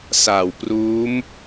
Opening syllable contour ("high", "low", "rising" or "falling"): low